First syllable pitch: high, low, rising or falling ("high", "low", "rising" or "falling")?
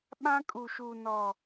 high